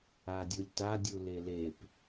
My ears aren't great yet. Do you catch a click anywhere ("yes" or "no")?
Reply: no